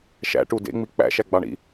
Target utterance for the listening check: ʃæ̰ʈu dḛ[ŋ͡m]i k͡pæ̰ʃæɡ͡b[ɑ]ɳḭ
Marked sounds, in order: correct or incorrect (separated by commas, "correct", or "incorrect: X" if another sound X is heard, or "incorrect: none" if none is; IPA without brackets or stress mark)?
correct, correct